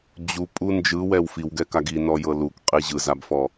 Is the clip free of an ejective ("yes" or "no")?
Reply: no